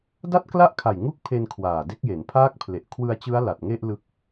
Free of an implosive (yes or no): yes